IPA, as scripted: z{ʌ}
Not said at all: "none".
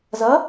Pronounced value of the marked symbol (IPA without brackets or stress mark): ʌ